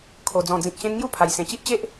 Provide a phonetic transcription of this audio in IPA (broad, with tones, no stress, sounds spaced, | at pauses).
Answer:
kʰ o˨˩ d͡z ɔ̃˨˩ d͡z ĩ˨ k̚ ɕ ẽ˧ n ŋ j u˧ pʰ a˨˩ j s ẽ˨˩ t͡ɕ i˦ ʔ t͡ɕ e˦ ʔ